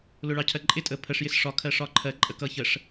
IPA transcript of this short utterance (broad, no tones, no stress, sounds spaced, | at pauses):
l ʊ ɭ ɑ cʰ ɜ ǃʼ ɪ tʼ ə pʰ ə ʂ j ɪ s ʂ ɒ kʰ ɜ ʂ ɒ ǃʰ ɜ ǃʼ ə k ʌ ç ə ʂ